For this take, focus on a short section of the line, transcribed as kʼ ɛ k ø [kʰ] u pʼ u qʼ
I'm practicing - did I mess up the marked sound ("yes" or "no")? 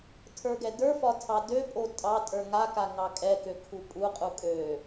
no